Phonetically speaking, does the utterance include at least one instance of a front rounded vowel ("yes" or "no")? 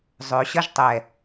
yes